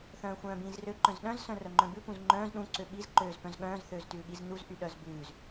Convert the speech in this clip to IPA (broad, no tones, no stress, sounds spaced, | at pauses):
θ œ̃ː xʷ œ̃ː b ĩː z r ø ǃ œ̃ z ɗ œ̃ z s œ̃ r œ ŋ͡ǃ œ̃ b ʉ p ũ z ŋ͡ǃ œ̃ː z ɗ ũ ǀ ø ɓ i z ǃ øː z p œ̃ z ɠ œ̃ː z θ øː z t ʉː ɠ i z n u z ʔ y ɗ œ z b ʉː z